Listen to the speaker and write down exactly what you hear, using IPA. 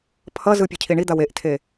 pʰ ʌ z ɯ pʲ e cʰ i ɳ i d̪ a w e ʔ tʰ e

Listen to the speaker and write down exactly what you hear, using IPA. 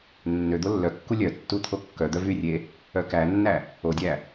nː ø d̪ o lː œ kː u lʲ œ tː u t̪ʰ o kː œ d̪ œ v y rʲ e | œ k æ nː æ | o dʲ æ

